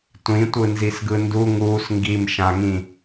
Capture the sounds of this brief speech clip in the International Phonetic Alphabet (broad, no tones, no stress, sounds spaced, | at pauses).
tʷ ĩ tʷ ɯ n z i s ɡ ɯ n d u ŋ uː s ŋ ɡ i m ʃ ã ŋ ĩ